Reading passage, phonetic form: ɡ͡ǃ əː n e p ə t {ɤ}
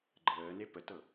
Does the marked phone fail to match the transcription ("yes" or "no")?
no